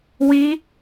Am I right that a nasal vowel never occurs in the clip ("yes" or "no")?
yes